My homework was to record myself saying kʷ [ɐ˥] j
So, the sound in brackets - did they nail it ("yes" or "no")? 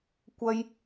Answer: yes